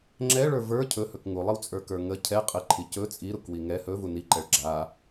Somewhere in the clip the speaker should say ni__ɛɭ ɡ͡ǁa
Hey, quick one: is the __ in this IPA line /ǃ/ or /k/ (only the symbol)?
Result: ǃ